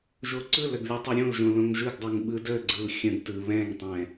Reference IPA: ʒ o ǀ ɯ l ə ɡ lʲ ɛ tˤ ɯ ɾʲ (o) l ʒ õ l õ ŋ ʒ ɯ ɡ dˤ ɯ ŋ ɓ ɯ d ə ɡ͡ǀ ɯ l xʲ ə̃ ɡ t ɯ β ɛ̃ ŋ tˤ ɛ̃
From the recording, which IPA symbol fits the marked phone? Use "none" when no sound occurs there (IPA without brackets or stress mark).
õ